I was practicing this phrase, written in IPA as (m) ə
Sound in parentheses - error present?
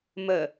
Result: no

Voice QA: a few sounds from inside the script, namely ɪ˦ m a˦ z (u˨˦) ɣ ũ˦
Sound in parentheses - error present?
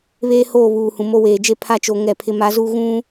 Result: yes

